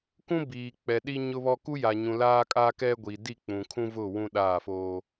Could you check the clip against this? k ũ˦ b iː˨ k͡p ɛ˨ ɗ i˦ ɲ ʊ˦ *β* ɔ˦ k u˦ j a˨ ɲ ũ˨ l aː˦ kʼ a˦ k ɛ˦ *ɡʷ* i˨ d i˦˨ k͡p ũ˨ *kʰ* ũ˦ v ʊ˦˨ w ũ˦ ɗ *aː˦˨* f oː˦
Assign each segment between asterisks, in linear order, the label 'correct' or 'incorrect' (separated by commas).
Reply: correct, correct, correct, correct